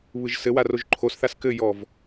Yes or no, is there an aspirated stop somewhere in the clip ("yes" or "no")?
yes